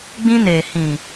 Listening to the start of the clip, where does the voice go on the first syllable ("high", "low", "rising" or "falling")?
high